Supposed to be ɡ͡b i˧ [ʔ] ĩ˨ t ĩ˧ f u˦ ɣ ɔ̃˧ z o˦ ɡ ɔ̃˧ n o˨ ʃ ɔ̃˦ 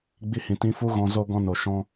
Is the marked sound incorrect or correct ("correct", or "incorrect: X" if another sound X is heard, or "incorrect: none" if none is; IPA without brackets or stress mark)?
incorrect: h